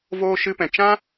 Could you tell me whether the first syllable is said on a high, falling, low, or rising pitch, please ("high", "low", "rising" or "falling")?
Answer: high